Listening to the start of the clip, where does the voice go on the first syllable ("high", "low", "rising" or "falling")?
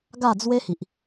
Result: falling